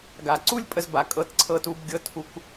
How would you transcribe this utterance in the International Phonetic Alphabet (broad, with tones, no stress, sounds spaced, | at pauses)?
ɡ a˨ ǀ u˦ lʲ pʼ ə˧ z b a˨ kʼ ɤ˧ t ǀʰ ɤ˧ t u˧ b ɡʲ ɤ˧ tʰ u˧ k